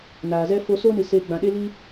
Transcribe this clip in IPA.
naː˨zɛ˦ fo˧so˦nɨ˨ seː˧ ɡ͡bã˨ɗe˦li˦

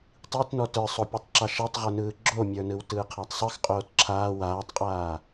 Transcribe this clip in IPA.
tˤitnɔ tə˞sˤopʲɯtˤ ǁɑʃɛtˤʁə˞nɯː ɡ͡ǁomʲə˞nɯw tɯːqʰatˤsˤɯx qʼoːtǁʰaː waːtˤqʼaː

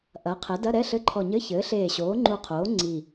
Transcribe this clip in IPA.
ʔɐː˩˥qʰɛ˩˥ dɐ˧˥˧ɾɛ˧˥˧ɬɘ˧˥˧ǃʰɔ˧˩ ɲɘ˧˥˧çɘː˩˥ɬeː˧˩ ɕoː˩˥ŋ͡ǃu˧˩qʰoː˩˥ ŋ͡ǀi˧˩

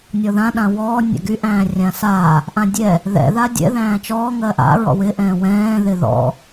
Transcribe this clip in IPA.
nʲɔðã ɗãwɔː nʲa̰ɡy ʔæ̃ːrʲãsaː | ʔãdʲɛ | ðɛ̰ ðadʲɛ̰ ðæ̃ːt͡ʃɔː ŋɜʔa̰ ɹɔ̰wɪ ʔɛ̃ːwɛ̃ː ðɪðɔ̰

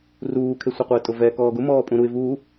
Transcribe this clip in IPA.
ruːkʰe sʷɛqʷɪːtʼʊvɛ kɔːɡʊ mɔːpʼũɾuɪ̯ vuː

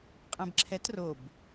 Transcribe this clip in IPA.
qʼɛ̃bǁʰɛt rob

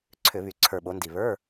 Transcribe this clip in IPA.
ǀʰʏ˧˩˧βy˨˩ ǀʰə˞˨˩ɓo˩˧ndi˨˩ βə˞˧˥˧

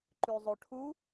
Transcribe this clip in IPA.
ǃʉzˤoʈʰu

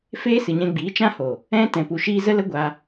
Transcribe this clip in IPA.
feː˦sɨ˨ɲɛ̃˧ɡ͡biː˨˦ t͡ʃã˦ho˨ | ɛ̃˧ tɛ̃˨pu˨ʃiː˧ zə˦lə˦ɡʷa˧

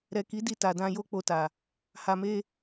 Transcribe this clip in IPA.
ɾɛ˨ki˨˦ di˧ta˨dã˧ jo˦k͡po˧ta˨ | ha˨me˧

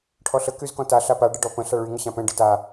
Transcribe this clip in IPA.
ʈʰɔɬə kyzkɔ̃ta ɬapa ɖəɖɔpə̃ ɬaɭy ŋəɕãpɛ̃ ɖəta

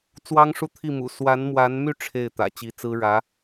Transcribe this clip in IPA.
t͡swɑ˥ŋʂu˥˧t̪ʰi˥˩mṵ˨˩ swa˧˥nmwa˧˥nmy˥˧ ʈ͡ʂʰe˥˩ɪ̯ t̪ä̰˨˩ t͡ɕi˧˥t͡sɹ̩˥ ɻä˧˥

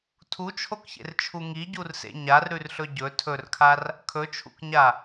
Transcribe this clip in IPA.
tʰut͡ʃʰokçḛrt͡ʃʰu ŋiɟursḛ ɲarɾʉrɬɵ ɟɵ tʰɵrkʰar | kʰɵt͡ʃʰṵkɲa

